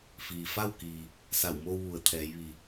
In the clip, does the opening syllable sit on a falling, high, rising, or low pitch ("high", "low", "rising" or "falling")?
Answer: low